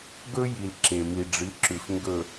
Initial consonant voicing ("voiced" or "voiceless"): voiced